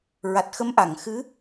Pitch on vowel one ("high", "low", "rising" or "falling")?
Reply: low